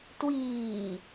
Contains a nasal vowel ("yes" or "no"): no